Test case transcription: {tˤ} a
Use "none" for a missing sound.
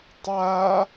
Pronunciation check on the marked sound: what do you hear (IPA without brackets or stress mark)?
tˤ